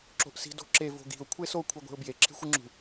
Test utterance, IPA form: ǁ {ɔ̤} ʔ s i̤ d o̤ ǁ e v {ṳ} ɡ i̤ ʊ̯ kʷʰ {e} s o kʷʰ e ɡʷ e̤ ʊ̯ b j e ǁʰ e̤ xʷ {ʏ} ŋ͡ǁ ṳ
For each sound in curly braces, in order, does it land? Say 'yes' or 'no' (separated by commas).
no, no, yes, no